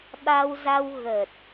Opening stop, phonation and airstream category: implosive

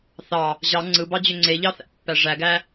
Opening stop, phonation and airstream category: click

